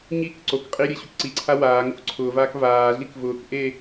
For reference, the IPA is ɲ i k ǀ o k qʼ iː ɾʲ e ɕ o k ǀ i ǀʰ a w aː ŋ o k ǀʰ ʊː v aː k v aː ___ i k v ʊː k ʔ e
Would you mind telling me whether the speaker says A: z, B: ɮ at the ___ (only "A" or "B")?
B